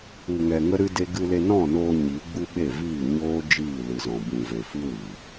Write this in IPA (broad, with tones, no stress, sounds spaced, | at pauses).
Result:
u˨ ŋ ɛ˨ ŋ ə˦ ɾ ɨ˦ d e˦ ɡ ɨ˧ l e˧ n ɔ̃˦˨ n oː˧ ɲ iː˨˦ ɡ͡b u˦ ɓ e˦˨ v iː˦˨ ɲ oː˦ d͡ʒ iː˦˨ l ɨ˨ z ɔ̃˨ b ũ˨ v e˨ f ɨ˦ w iː˨